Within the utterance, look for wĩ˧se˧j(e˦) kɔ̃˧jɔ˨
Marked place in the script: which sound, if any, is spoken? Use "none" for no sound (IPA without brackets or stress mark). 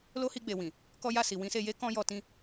e˦